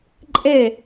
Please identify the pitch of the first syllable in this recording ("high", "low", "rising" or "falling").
falling